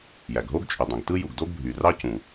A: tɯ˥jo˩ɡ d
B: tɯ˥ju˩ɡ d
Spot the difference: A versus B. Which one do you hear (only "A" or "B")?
B